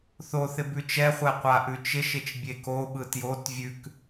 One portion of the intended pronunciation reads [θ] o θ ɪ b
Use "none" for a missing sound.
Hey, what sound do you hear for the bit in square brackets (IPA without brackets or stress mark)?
θ